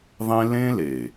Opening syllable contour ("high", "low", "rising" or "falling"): high